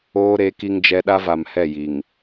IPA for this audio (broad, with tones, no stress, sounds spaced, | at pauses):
oː˦ ɾ e˨˦ k i˦ ŋ d͡ʒ ɛ˦ ɗ a˦ v a˨ m h ɛ˦˨ j i˨ ŋ